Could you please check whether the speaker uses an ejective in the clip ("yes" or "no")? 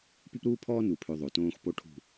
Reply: no